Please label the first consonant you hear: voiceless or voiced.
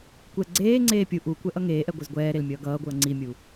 voiceless